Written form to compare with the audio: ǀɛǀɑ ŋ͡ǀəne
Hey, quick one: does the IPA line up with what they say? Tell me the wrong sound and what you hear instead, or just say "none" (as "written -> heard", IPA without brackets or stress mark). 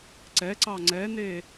ə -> ɛ